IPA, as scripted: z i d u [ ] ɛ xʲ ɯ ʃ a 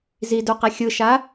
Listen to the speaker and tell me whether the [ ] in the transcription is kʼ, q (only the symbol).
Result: q